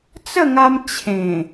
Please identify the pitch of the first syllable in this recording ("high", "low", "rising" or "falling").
falling